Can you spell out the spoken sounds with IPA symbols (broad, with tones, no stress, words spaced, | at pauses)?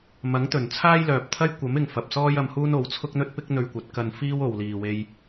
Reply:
mɐ˨˥ŋt̪ɵ˨˩n t͡sʰaː˥jlœː˨p̚t̪ʰɐ˥j kʷɐ˨˥mɪ˨ŋ fɐ˨p̚sɔː˥j ɐ˧mhuː˥n o˨˥w t͡sʰʊ˥k̚n̪ɵ˥t̚ pɪ˥k̚ n̪ɵ˧ɥkʷɐ˨˥t̚ kɐ˧nfiː˥wo˨w liː˨we˧j